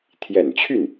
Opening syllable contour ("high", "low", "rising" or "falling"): low